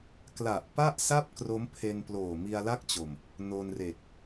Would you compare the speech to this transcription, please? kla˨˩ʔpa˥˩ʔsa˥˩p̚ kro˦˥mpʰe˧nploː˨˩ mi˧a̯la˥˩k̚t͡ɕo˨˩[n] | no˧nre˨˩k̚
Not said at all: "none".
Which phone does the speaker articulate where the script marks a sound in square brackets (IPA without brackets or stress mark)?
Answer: m